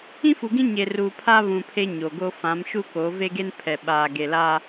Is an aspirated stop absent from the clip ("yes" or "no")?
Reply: no